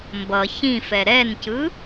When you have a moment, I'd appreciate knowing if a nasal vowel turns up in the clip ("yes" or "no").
yes